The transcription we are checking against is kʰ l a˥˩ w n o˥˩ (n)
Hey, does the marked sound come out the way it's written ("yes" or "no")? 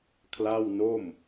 no